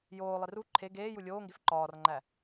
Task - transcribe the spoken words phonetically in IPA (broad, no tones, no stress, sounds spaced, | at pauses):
j oː lˠ i r u ǃʰ e ɡ eː j u lʲ oː ŋ ɡ e f ǃ ɒː r ŋ͡ǃ æ